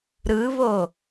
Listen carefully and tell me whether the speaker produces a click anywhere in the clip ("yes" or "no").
no